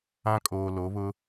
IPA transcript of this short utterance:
ã˦ kʼ oː˨ l o˨˦ β ʊ˦

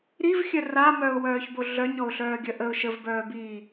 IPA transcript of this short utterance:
ɾ i v xʲ œ r a m œ ʊ̯ w œː ç b o ɮ œ ɲ ɔ ʊ̯ ɬ œː ɡʲ œ ʔ ə ʊ̯ ʃ ə v b œː b iː

